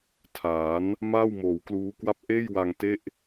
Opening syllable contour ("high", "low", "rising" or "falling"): rising